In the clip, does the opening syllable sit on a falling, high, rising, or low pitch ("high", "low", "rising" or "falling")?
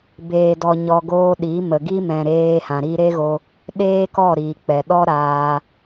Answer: low